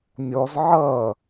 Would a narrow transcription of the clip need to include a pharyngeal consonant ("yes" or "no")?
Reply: yes